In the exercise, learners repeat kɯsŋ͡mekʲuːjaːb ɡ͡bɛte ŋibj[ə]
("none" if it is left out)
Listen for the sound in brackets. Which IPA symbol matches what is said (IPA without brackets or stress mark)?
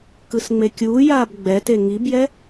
ɛ